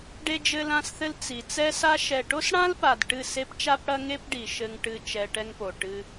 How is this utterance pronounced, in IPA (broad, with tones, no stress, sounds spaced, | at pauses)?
ɖ e˧ d͡ʒ ɘ˧ l ã˧ s θ ɘ˧ l t͡s i˨ t͡s ɛ˧ s a˧ ʃ ɛ˨ ʈ o˦ s ɽ ã˦ l p a˨ d ʈ ɨ˦˨ s e˦ p t͡ʃ a˦ p ɽ ɐ˦ ŋ e˦ p ɖ i˨ ʃ ɘ˧ ŋ ʈ ɨ˧ t͡ʃ ɛ˧ ʈ ɛ˦ ŋ p o˨ ʈ ɨ˧